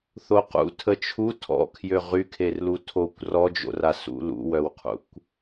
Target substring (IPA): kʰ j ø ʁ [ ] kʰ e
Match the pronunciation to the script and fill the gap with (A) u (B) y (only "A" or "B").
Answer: B